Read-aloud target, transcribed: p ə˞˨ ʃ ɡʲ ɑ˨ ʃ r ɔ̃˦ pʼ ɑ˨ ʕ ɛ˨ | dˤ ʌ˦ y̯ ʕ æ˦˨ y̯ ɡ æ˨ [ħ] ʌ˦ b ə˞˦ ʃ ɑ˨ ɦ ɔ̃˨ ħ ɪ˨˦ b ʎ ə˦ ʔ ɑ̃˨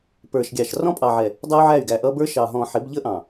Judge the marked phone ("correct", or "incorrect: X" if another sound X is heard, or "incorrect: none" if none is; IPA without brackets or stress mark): incorrect: ʔ